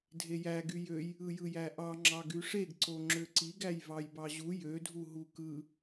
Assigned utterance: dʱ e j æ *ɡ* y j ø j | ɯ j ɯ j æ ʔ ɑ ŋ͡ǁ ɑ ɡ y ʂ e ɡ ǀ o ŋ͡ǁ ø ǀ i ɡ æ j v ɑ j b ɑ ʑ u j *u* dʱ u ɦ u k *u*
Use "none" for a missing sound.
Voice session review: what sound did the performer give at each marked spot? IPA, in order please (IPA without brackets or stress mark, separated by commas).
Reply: ɡ, ø, ɯ